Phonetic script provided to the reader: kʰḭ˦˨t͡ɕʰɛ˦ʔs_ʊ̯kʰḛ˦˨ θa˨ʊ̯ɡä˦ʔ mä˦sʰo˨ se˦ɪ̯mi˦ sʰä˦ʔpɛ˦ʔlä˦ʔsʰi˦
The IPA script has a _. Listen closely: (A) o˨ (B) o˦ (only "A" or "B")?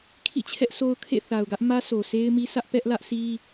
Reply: B